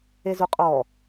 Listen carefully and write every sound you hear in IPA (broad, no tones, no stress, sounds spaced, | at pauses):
e z u qʼ ɔ